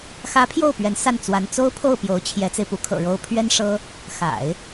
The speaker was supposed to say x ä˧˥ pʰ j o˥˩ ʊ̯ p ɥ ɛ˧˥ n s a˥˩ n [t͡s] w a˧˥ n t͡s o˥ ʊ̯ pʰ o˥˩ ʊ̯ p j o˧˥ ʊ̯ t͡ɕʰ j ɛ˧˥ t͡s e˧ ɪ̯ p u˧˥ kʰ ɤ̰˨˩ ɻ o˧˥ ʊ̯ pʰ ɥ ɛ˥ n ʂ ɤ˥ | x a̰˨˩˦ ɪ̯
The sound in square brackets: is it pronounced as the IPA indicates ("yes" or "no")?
yes